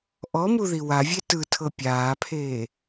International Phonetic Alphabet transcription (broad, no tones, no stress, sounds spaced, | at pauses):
ʔ ɔ m u ð i w a vʲ e t ɯ tʰ ɤ pʲ aː pʰ eː